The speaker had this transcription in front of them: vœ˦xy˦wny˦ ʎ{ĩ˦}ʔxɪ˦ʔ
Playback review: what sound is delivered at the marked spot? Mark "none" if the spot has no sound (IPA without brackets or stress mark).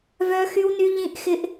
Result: ĩ˦